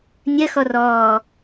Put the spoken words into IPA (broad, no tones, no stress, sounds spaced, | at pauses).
nʲ ɐ x ɔ r ɔː